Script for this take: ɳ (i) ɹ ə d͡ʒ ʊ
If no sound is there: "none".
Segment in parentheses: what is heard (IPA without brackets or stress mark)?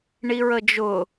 i